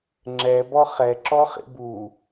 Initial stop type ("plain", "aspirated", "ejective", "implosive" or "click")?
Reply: click